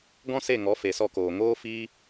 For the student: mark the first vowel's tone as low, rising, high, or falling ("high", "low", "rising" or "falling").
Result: high